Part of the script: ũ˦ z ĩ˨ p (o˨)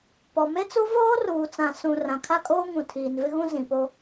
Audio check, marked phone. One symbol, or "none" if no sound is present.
o˦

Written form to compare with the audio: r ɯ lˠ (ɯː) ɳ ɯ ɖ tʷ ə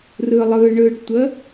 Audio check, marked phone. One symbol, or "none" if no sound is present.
ɯ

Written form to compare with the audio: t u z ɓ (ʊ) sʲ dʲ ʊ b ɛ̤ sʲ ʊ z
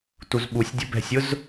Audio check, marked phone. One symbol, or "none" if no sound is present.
u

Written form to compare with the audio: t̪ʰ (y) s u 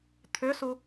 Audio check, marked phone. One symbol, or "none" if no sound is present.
ʏ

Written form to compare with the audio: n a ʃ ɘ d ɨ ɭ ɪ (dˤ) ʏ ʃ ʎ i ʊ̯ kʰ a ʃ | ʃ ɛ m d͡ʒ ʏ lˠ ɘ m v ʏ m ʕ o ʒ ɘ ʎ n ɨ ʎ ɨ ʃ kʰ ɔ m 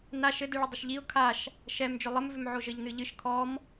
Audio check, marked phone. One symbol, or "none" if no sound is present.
dˤ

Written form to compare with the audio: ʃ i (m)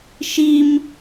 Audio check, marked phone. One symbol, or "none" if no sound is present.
m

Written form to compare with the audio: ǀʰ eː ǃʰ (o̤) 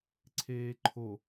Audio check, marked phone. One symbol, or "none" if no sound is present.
o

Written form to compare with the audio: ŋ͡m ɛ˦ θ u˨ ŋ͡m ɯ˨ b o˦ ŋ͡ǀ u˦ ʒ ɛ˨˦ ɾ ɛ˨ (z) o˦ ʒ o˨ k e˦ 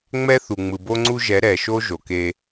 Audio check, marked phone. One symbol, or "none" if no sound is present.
ʃ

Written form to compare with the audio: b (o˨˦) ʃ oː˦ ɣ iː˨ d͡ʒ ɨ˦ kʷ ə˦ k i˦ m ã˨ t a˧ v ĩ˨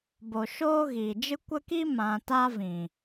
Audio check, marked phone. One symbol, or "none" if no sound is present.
o˨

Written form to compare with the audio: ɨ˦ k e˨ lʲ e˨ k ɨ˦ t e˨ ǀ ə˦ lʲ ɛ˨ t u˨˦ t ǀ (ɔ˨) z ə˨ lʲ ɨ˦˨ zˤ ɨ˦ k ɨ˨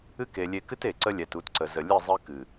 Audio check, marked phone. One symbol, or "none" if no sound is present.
ə˨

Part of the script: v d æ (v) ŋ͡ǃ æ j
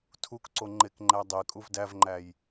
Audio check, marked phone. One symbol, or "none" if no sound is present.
v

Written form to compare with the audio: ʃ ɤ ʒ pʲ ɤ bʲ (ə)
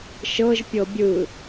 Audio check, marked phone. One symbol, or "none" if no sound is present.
ɯ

